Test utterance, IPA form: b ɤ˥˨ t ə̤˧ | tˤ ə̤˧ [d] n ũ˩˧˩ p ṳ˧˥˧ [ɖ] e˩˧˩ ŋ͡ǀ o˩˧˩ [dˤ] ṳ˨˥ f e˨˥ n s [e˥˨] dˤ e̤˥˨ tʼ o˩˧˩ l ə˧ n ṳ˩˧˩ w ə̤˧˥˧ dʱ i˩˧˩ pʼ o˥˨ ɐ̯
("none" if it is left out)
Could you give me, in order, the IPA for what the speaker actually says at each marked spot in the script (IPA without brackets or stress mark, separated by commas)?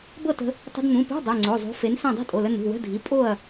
d, dˤ, zˤ, ẽ˥˨